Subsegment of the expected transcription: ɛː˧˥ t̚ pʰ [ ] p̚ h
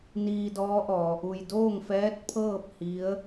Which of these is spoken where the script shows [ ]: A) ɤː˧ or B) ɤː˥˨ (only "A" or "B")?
B